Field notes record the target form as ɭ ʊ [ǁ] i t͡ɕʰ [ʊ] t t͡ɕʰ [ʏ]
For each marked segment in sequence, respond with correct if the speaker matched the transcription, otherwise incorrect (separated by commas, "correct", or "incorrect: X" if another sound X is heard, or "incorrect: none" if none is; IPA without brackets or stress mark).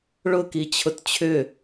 incorrect: k, correct, correct